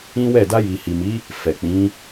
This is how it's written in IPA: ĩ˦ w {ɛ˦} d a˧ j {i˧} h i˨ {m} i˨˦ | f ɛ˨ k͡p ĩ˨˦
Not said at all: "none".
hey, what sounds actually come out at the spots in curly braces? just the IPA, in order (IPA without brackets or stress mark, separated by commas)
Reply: ɛ˦˨, i˨, m